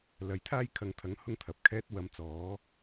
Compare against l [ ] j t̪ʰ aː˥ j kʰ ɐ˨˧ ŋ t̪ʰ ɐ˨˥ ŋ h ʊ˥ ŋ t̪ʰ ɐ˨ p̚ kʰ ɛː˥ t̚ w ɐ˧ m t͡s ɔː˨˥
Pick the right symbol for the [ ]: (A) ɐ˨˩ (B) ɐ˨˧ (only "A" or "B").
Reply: B